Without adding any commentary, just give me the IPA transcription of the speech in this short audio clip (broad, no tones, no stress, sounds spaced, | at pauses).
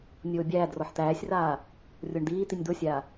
nʲ oː bʲ æː d r ɔ ħ t̪ æː sʲ r aː | rʲ o ɳ d̪ iː t̪ i nʲ d̪ o sʲ aː